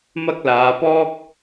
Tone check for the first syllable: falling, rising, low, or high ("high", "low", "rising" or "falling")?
high